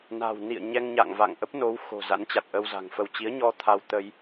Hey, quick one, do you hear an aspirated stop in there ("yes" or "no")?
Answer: yes